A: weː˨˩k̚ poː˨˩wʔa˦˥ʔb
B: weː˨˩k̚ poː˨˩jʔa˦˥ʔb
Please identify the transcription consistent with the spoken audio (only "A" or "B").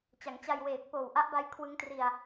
A